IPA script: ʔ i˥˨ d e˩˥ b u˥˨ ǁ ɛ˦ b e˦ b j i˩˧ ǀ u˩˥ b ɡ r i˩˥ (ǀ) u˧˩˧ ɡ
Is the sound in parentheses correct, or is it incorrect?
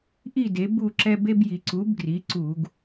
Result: correct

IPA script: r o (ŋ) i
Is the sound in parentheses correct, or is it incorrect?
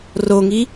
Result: correct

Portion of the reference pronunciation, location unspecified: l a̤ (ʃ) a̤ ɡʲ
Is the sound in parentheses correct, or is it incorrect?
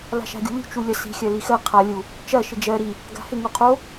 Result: correct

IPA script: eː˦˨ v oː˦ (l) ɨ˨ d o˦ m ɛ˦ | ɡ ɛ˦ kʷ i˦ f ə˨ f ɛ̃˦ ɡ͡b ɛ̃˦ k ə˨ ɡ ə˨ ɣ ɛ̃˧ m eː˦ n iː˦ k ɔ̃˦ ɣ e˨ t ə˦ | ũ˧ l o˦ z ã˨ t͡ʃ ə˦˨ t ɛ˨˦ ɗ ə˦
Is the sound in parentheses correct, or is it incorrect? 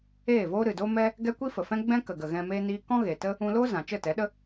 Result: incorrect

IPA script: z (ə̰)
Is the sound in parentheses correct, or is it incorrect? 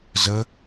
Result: incorrect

